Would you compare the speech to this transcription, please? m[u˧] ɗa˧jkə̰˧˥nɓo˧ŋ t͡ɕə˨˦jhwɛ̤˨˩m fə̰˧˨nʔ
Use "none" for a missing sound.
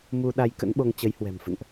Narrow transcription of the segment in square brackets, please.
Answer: u˧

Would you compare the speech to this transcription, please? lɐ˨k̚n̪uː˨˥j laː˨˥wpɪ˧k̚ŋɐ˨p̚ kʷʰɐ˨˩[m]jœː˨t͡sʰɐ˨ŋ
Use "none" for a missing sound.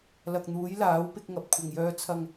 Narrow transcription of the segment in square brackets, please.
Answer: ŋ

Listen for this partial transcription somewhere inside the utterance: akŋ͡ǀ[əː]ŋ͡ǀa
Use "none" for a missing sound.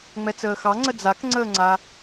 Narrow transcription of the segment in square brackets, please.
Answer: əː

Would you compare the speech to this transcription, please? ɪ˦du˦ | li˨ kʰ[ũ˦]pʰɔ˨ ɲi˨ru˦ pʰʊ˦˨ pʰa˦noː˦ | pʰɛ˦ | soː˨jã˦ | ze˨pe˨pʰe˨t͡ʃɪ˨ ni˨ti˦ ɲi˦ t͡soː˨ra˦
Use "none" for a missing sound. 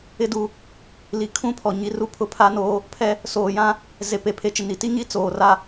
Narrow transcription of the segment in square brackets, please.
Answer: ũ˦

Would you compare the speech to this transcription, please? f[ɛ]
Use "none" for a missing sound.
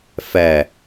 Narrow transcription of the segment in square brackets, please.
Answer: ɛ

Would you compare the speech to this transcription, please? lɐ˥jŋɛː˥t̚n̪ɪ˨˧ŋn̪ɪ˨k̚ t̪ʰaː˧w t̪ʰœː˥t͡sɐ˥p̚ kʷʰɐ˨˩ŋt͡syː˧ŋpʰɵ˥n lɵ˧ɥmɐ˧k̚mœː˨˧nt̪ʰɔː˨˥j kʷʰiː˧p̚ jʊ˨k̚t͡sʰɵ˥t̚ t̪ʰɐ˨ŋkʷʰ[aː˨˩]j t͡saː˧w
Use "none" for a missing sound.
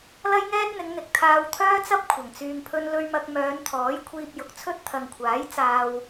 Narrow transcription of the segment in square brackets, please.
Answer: aː˨˥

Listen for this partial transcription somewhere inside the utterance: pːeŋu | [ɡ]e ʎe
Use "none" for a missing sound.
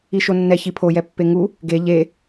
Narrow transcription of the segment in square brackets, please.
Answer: ɡ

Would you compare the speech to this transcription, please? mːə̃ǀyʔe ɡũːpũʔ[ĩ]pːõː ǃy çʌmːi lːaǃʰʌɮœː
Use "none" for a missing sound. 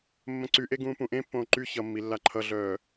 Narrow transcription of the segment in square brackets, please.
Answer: ẽ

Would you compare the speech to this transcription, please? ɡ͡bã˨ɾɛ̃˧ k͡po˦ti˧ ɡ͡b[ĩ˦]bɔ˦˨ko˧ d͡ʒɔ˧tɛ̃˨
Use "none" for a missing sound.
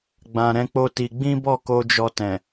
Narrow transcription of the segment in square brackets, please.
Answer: ĩ˦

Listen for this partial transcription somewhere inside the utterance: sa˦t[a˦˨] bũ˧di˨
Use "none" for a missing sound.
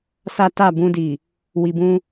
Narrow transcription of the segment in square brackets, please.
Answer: a˦˨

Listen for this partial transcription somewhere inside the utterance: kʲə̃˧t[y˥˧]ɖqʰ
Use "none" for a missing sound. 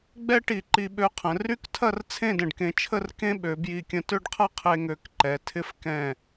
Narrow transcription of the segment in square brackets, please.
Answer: ø˥˧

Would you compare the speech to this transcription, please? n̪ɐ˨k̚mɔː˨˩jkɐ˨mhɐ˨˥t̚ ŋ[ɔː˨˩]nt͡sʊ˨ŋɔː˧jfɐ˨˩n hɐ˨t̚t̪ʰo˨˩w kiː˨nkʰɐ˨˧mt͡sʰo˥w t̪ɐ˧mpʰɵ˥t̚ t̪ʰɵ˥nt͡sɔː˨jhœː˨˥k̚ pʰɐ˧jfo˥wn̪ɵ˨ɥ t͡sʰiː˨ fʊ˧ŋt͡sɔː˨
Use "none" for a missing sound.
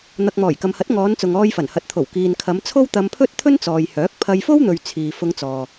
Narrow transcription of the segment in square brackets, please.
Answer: ɔː˨˧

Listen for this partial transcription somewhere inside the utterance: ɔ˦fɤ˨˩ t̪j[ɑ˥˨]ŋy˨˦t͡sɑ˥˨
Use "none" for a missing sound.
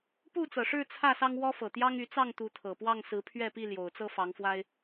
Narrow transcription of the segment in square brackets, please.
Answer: ɑ˦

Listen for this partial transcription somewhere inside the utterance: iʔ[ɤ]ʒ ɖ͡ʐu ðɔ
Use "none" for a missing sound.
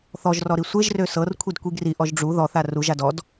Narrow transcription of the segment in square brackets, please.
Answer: ɔ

